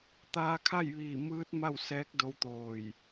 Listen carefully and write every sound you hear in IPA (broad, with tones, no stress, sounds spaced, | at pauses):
t̪ aː˧ kʰ a˥˨ j ʋ iː˧˩ m ɯː˧˥ t̚ m a˥˨ w s ɛː˧˥ k̚ d o˧˥ w t̪ oː˧˩ j